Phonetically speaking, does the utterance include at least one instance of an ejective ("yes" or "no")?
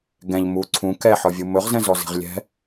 no